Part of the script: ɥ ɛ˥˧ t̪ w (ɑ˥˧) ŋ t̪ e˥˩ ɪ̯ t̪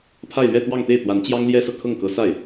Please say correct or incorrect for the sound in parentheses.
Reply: correct